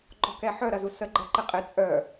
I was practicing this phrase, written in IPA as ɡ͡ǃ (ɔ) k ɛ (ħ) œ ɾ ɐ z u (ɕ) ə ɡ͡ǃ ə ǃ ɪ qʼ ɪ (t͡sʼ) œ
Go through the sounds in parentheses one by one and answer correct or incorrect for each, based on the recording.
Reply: correct, correct, incorrect, correct

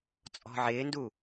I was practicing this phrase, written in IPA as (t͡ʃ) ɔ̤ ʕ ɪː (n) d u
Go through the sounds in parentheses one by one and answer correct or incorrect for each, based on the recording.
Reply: incorrect, correct

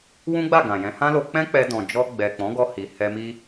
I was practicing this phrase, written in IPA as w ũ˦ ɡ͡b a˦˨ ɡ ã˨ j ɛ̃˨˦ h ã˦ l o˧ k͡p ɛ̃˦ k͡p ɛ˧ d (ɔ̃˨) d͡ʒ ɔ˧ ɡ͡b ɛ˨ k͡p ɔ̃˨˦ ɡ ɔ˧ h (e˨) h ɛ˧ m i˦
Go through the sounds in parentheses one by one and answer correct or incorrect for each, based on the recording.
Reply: correct, incorrect

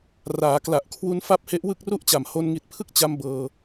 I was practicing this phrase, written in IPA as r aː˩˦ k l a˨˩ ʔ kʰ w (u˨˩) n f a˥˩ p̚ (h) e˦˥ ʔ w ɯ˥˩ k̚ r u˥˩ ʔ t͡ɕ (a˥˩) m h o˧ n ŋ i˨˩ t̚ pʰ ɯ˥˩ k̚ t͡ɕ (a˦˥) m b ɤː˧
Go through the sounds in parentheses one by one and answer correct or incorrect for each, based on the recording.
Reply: incorrect, correct, incorrect, correct

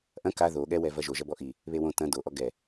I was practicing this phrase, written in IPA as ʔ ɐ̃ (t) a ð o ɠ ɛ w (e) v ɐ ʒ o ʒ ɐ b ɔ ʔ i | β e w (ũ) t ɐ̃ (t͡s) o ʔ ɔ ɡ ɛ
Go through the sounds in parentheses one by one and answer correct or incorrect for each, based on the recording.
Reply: incorrect, incorrect, incorrect, incorrect

